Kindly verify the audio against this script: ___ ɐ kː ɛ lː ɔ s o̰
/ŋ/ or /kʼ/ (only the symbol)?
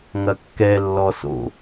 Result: ŋ